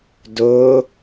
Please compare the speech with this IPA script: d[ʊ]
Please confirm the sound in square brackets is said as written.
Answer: yes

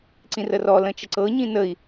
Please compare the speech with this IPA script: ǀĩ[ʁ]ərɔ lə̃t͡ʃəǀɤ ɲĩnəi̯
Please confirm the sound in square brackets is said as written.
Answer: no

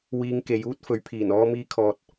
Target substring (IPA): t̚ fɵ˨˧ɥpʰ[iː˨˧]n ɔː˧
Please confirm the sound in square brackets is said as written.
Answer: no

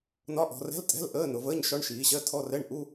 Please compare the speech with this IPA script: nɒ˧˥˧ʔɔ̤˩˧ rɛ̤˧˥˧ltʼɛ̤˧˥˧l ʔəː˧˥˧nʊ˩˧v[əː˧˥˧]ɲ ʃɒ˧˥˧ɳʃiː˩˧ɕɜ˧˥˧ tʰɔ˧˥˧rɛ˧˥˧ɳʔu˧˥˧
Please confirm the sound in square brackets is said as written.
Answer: yes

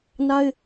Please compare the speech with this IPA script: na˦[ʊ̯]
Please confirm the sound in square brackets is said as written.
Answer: no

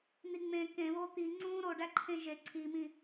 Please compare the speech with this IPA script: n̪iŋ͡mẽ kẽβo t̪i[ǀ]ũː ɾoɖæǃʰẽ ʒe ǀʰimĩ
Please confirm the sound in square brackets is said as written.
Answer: no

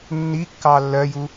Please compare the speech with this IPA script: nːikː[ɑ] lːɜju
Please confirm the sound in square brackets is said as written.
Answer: yes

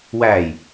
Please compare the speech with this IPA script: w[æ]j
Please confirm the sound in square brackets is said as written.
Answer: yes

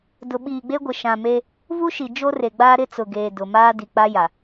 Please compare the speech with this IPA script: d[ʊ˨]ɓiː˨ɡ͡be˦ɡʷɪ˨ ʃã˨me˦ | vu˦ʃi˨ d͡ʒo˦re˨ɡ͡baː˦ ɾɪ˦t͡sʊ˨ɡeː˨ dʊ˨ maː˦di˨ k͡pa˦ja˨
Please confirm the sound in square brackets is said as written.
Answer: yes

